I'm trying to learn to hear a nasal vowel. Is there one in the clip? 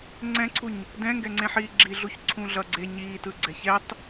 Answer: yes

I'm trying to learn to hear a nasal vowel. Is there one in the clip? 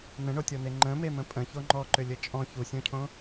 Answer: yes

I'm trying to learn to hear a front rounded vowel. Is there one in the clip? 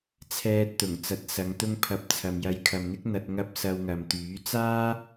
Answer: yes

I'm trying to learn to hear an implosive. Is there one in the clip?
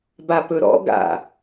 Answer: no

